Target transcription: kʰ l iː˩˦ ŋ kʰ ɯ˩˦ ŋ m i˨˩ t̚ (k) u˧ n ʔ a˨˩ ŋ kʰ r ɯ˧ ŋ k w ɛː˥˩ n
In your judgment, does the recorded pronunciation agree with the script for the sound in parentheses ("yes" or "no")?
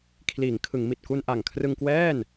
yes